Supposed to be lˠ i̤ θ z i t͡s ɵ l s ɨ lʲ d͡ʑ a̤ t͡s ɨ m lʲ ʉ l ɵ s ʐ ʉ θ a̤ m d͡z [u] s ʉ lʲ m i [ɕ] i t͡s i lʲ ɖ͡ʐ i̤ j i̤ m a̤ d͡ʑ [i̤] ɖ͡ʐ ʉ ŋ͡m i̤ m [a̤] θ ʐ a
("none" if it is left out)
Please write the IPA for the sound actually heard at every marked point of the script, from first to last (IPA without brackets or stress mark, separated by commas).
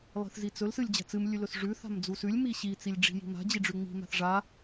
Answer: u, ɕ, i, a̤